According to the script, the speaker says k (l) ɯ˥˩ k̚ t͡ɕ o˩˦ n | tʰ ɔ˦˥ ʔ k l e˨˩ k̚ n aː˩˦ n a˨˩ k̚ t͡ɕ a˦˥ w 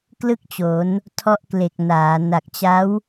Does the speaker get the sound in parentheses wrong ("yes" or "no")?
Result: no